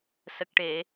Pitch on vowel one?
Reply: low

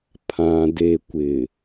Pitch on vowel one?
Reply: low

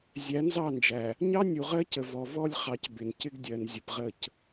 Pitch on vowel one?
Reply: rising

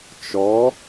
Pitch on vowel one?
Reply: rising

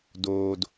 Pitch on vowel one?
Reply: low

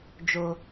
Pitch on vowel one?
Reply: low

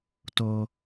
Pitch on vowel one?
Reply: high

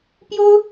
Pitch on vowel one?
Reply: high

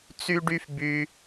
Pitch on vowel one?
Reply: high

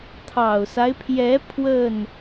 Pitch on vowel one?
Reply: low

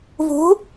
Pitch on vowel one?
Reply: rising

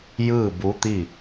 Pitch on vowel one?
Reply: falling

